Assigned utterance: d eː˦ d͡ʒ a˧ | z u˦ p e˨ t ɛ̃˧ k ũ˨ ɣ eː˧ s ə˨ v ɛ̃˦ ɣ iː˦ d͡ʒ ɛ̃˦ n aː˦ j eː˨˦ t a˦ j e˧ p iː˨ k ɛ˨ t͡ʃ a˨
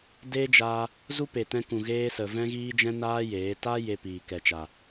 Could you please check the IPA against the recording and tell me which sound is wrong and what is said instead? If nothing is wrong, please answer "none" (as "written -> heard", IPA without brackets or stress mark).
none